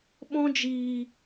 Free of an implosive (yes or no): no